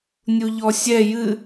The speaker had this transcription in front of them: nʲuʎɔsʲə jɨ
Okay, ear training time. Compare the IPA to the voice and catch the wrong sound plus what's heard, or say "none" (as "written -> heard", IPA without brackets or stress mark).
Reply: ə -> ɛ